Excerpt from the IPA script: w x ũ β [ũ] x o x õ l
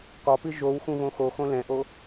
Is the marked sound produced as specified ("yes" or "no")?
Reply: no